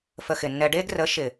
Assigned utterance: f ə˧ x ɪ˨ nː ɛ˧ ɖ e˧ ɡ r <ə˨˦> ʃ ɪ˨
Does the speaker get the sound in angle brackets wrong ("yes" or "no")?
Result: no